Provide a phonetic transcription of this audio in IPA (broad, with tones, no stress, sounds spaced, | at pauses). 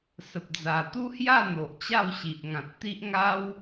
s ə˨ p̚ d͡z a˨˩ t̪ u˦ h j a˥˧ n̪ o˨ ʔ t͡ɕ a˥˧ w ɕ i˨ ʔ ŋ ã˨ t̚ t̪ i˦ ʔ ŋ a˦ w